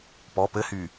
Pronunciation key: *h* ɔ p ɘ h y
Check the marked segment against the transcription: incorrect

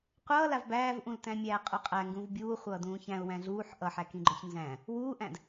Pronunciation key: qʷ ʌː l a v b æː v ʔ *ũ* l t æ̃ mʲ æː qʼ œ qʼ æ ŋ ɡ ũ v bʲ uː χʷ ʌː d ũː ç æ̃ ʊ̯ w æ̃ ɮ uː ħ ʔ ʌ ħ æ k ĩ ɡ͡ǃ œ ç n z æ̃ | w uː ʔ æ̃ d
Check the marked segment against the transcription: correct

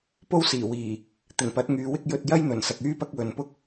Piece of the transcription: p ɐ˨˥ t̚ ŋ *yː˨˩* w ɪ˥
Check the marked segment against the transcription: incorrect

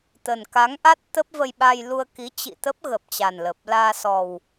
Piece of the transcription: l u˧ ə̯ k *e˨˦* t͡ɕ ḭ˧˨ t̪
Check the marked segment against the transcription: incorrect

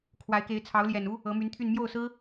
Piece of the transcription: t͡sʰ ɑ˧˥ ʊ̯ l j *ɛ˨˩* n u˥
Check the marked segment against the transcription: correct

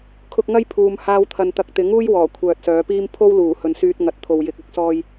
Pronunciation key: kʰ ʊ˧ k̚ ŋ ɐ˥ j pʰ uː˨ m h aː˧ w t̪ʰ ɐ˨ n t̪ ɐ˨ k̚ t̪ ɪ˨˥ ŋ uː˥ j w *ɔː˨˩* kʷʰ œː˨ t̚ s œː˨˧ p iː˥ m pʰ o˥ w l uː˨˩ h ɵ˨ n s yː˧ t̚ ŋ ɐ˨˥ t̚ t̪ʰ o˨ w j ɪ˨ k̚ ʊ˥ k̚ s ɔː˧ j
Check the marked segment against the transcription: correct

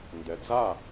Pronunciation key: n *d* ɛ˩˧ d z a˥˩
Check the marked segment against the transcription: correct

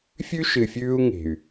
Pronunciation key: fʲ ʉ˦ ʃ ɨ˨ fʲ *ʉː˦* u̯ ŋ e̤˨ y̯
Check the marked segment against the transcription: correct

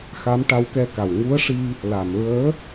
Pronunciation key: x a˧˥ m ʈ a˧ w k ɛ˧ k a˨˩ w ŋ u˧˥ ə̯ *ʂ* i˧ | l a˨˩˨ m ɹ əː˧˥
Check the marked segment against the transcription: correct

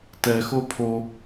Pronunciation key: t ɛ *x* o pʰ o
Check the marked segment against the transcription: correct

